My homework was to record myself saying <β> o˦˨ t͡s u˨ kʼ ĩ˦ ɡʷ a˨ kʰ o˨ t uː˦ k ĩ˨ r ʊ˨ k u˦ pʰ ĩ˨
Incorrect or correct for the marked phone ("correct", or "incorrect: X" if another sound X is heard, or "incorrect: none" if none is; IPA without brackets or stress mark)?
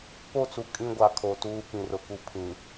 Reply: incorrect: p